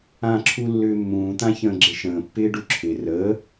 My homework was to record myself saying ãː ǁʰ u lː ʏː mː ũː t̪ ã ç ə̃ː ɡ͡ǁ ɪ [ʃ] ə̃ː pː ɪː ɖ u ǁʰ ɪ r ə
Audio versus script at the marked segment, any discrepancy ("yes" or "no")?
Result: no